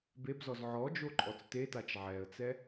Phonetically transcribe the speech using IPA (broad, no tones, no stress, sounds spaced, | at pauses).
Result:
b e b z ɔ z ʕ ɔ d͡ʒ o ǃʼ ɔ t͡s t e t a t͡ʃ ʕ ɛ ə̯ t͡s ɛ